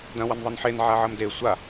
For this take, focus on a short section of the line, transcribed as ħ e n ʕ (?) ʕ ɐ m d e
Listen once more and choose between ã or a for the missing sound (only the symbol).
a